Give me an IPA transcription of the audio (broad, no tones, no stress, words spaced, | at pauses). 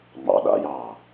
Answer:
ŋ͡mɑ̰ ɗa̰jɑː